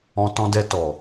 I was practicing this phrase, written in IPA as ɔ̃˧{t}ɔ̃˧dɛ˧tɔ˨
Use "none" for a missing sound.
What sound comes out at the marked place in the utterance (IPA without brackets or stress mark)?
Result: t